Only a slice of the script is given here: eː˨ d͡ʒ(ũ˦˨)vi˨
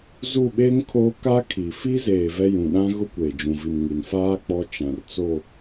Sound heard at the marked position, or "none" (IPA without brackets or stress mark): ũ˨